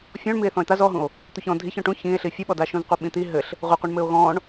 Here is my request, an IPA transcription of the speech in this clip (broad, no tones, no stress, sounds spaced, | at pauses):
fʲ ɔ̃ ɳ m i e̯ θ ɔ̃ e̯ t̪ a z ɔ ɦ ũ o̯ | t̪ u ç ɔ̃ dʱ i ç ɔ̃ ʈ ũ ç ĩ e̯ ɬ i fʲ u ɓ ɔ d a ʃ ũ z qʷ ɘ ɓ ĩ t̪ i ɦ ɘ ɬ | ʁʷ ɘ qʷ ɛ ɳ m ɘ o̯ ɣ ɔ̃ ɳ